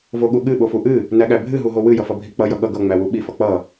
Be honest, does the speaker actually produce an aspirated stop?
no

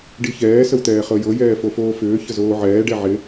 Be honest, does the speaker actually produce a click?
no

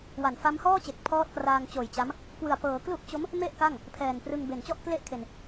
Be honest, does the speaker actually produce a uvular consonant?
no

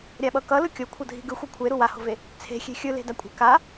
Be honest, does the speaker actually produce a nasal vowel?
no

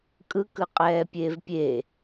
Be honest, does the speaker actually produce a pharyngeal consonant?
no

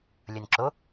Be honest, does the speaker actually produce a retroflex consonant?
no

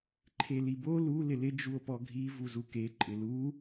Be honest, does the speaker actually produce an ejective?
yes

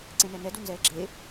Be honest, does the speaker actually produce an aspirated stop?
no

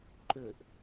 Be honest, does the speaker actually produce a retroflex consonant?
no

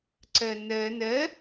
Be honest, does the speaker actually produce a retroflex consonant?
no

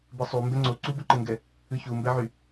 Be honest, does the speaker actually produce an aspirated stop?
no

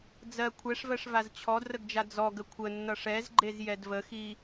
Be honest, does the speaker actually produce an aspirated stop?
yes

